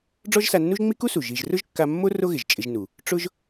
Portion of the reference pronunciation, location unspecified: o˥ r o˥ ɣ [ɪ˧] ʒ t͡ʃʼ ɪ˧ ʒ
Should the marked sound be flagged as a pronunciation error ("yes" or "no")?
yes